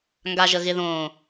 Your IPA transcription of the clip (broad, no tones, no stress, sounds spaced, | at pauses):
ŋ ɡ a ʒ ə ɣ ɪ ð õː